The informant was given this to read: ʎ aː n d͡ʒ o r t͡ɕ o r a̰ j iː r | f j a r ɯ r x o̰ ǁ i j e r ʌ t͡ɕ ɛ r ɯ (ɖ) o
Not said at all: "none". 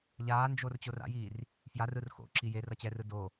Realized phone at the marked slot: d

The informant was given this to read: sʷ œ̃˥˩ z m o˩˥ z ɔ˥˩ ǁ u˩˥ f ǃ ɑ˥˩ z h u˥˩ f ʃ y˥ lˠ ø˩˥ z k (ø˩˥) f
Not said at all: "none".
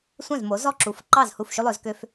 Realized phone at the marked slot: ø˥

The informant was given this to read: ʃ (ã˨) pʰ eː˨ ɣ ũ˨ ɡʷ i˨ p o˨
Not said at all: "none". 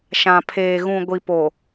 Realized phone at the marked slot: ã˨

